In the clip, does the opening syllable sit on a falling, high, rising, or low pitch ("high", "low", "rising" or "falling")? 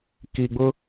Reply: low